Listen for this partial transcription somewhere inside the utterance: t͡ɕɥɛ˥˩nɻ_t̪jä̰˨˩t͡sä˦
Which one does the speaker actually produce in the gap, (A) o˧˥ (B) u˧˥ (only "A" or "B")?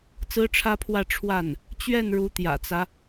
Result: B